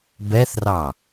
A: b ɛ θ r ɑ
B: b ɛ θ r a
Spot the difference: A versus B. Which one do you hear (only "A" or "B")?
A